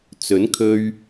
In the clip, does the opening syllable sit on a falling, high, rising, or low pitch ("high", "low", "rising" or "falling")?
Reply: rising